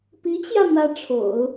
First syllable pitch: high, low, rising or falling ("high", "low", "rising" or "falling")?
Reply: rising